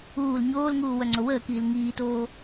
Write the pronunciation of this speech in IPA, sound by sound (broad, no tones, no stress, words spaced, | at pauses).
uːl ɲoːlŋuː wœŋ͡ǀowəːkiːl ŋiːtoː